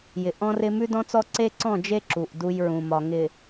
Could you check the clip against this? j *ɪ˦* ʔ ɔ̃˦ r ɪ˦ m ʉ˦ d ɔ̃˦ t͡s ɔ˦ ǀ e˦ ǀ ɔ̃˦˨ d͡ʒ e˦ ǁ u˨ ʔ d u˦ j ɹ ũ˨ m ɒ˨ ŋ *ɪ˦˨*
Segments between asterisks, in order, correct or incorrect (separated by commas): incorrect, incorrect